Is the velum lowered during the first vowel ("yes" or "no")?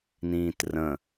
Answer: yes